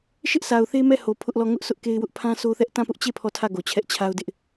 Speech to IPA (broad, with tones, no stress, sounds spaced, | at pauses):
ʃ ɪ˦ ʔ s a˨ ʊ̯ θ e˦ m ɛ˦˨ h o˨ pʰ ʊ˦ ʔ l ɔ˦˨ ŋ ʊ˦ ʔ s ʊ˦ ʔ k e˦ ɪ̯ w ʊ˦ ʔ pʰ ã˦ sʰ o˦ θ ɛ˦ ʔ t ã˦˨ p ʊ˦ ʔ t͡ɕ e˦˨ pʰ ɔ˦˨ tʰ ä˦˨ ɡ o˨ t͡ɕʰ ɛ˦ ʔ t͡ɕʰ a˦ ʊ̯ d ɪ˦ ʔ